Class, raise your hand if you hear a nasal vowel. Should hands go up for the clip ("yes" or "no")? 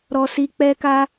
no